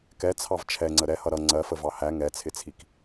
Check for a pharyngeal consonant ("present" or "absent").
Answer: absent